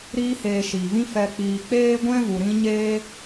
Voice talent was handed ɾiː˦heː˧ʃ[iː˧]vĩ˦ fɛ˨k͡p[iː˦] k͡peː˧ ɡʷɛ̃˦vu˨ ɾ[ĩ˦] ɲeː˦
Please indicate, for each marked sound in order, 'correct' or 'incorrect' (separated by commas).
incorrect, incorrect, correct